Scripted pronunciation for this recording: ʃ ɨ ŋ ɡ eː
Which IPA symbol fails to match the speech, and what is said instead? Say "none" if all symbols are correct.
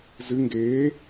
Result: ʃ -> z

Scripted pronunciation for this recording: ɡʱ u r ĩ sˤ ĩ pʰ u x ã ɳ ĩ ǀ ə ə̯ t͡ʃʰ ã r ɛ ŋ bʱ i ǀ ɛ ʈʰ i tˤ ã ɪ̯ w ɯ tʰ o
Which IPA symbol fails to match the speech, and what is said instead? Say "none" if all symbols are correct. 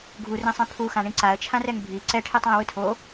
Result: ə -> a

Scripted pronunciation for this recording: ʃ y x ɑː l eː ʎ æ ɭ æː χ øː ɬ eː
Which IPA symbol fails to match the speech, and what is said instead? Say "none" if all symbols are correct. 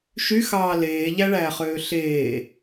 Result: none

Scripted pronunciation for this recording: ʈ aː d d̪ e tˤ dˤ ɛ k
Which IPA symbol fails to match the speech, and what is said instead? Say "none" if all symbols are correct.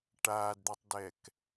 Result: dˤ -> d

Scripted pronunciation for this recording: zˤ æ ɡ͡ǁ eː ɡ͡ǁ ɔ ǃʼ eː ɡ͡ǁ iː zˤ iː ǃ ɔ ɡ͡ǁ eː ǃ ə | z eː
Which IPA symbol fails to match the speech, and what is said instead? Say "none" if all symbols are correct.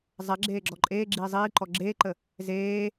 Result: æ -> ɛ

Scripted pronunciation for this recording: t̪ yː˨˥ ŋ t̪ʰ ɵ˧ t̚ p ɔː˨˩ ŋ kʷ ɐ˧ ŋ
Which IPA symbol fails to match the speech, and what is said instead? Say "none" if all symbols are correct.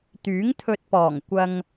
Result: none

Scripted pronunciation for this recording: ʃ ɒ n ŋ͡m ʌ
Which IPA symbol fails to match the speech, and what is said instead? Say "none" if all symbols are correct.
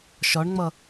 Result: n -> ɳ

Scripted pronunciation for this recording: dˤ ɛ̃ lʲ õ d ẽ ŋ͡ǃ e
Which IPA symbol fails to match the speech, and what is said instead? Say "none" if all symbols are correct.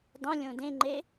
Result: ɛ̃ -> ẽ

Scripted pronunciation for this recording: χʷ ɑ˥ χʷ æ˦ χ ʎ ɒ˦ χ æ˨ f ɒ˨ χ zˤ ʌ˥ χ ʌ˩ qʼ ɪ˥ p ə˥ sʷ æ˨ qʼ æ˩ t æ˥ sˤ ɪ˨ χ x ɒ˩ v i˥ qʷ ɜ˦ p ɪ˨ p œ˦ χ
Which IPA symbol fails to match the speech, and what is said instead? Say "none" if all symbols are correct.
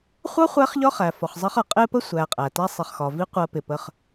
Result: œ˦ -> ə˦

